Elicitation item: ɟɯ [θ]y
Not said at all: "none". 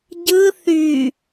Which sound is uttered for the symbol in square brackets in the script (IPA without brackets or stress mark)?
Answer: θ